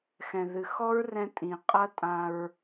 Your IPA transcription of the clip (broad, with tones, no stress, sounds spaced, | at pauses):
x ɛ̃˨ ð ɨ˨ x ɔ˦ ɹ r ɛ̃˧ tʼ ĩ˨ qʼ ɐ˦ tʼ ã˧ ɹ